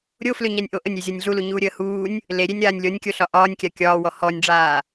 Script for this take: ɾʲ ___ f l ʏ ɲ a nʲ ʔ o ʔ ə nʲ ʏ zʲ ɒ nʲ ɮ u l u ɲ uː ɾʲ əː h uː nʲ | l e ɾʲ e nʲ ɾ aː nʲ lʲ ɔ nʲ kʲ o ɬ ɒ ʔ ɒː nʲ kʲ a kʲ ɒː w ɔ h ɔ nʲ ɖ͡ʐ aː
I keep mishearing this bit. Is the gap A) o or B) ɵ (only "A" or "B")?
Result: A